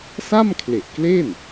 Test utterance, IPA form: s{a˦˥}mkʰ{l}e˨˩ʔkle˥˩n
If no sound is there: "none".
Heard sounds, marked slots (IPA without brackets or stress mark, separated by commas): a˥˩, l